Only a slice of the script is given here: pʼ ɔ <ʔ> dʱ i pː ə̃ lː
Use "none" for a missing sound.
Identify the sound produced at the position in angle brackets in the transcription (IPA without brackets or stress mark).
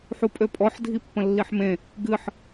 ħ